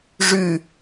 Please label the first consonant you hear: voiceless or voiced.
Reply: voiced